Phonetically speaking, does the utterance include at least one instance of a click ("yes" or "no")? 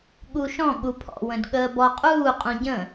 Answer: no